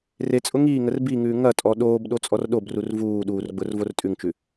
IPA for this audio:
r e t͡sʼ ʊ ŋ iː ŋ ə r b i ŋ ʉː ŋ ɐ tʼ ɔ ɗ oː b ɗ o t͡sʼ ɔ r ɗ o b r u r v uː ɗ uː r ɡ͡b ʊ r v o r tʼ ʉ ŋ t͡ʃ ʉ

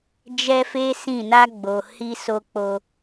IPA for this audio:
d͡ʒ ɛ˦ f e˦ s ĩ˦˨ n a˧ ɡ͡b o˨ h i˧ s o˧ k͡p o˧

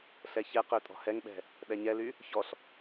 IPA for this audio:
ɬ ɛ ç ɛ q ø tʼ ɔ̤ h ɛ ŋ ɓ ɛ̤ | ɗ ɛ ɲ ɛ l y | ç ɔ ɬ

